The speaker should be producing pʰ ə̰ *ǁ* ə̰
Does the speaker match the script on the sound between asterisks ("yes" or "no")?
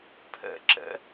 yes